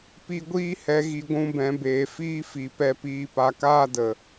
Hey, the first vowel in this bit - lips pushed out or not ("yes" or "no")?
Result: no